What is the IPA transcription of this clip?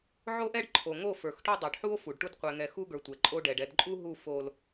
ʕ o˦ ʔ ɛ˦ ɖ ǃʰ o˨ ŋ o˦˨ f ə˞˨ x ʈ o˦ dˤ ə˞˨ ɖ ħ u˦ o̯ f u˨ ɖ ʈ u˦ d qʷ ɛ˨ ŋ ɛ˨ x u˦ ɡ ə˞˨ tʷ ɛ˨ ǃʼ o˦ ɖ ɛ˨ ɖ ɛ˨ d ǃʼ u˦ ɦ u˦˨ f o˦ l

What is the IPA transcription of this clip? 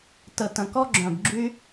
t ə˨˩ t ə̃˨˩ k ɔ˦ ɡ͡ǁ œ̃˨˩ b ɡ͡ǁ y˦

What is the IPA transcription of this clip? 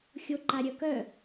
xʲ o ǃ a ɾʲ œ k œ

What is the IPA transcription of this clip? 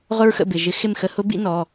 ʁ ʊ˥ ɹ x ə̰˥˩ b ɪ˩˧˩ ʒ ɪ˧˥ x ɪ˥˩ m x ə˧˥ h ʊ˧˥ b ḭ˧˥ n ɔ˩˧˩

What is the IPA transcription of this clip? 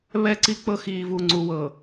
β ɛ˦˨ ǀ i˦ k͡p ɤ˦ x iː˨ v u˨ ŋ͡ǀ u˨ w ɤ˨

